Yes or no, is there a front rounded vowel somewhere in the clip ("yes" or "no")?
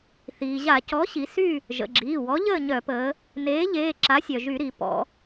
yes